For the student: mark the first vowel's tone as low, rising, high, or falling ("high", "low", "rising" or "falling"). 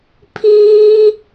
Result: high